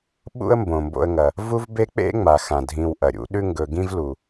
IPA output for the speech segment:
ɓ ṵ˥ ə̯ m b õ˩ m b o̰˧ ə̯ ŋ ɐ˩ | v u˥ v b e˥ k͡p ḛ˥ ŋ͡m a˩ x ã˩ dʱ ĩ˧ w ʔ ɐ˩ ɾʲ ṵ˥ ɗ ʉ˥ ŋ ɡ ɵ˧ ɡ ĩ˥ v l u˩

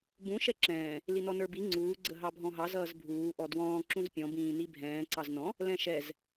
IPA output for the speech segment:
b ũ ʃ ɛ ǁ ɛ̃ː | l i n ɔ n ə˞ b i ŋ͡ǀ uː ɡ͡ǀ ə ɦ ɑ bʱ ɔ̃ ɦ ɑ z ʌː z bʱ uː ʔ ɔ d w ɔ̃ː ǁ ũ z pʲ ɔ̃ b ĩː n i bʱ ɛ̃ː ǀ ɑ z n ɔ̃ | l ɛ̃ ʃ ɛ z

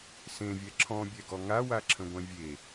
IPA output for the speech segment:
s ẽ vʲ ɛ ǁʰ ɔ̃ bʲ ɛ ɡ ɔ ŋ a w a ǁʰ ə̃ ɡʷ ɛ̃ vʲ e

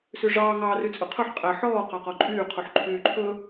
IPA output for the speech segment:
s ʉ ʐ ɑː ŋ ɑː r y t͡sʼ ɵ qʰ ɵ ħ qʼ æ ħ ɔː q ɑ q ɔ ǃʼ yː qʰ u ħ ǃʰ yː ǃʰ ɵ

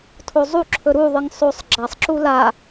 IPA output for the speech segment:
tʰ o zˤ u ǁʰ ɵ ɾ u ðˤ ɨ ŋ sˤ o sˤ ɡ͡ǁ a sˤ ǁ u l a

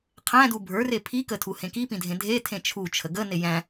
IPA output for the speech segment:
qʰ æ̃ d u bʱ ə˞ r e pʰ i k ə tʰ u h ẽ k i p ĩ dʱ ẽ dʱ e tʰ ẽ t͡ʃʰ u t͡ʃʰ ə ɡ ə n e j æ̃

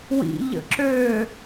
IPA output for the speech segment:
w ḭ ʎ ə̰ ǁ øː

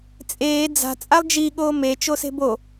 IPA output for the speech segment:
t͡sʼ eː d͡z a̤ t͡sʼ a lˠ d͡ʒ i ɠ oː m e t͡ʃ o s e̤ b o

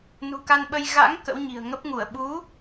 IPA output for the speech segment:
n ṳ˨˩ k a˧ n ɓ ə˧ j ɣ a̰˧˥ ŋ k ə̰˧˥ w ɲ i̤˨˩ ə̯ ŋ ə˦˥ p̚ ŋ u˧˩ ə̯ ɓ u˨˦

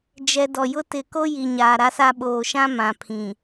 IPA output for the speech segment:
d͡ʒ ɛ˨ d ɔ˨ j ʊ˦ t ɪ˨ k o˦ j i˨ ɲ aː˨ ɾ a˦ s a˦ ɓ oː˨ ʃ ã˦ m ã˨ pʰ ĩ˨

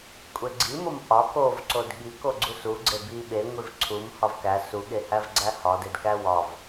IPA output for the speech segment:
kʷʼ e ɡ͡ǀ i m o m ʔ ɒ k o v ǀ o d ɠ i k o ɡ͡ǀ u s u ɡ͡ǀ e b i ɓ e ŋʷ i v ǀʰ u m h ɒ v k æ s u ɠ e h æ v ɡ͡ǀ æ h ɒ d e d k æ w ɒ v

